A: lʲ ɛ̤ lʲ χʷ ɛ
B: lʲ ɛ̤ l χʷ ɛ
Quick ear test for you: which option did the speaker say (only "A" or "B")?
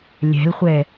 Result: B